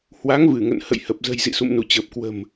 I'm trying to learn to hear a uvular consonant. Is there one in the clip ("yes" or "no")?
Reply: no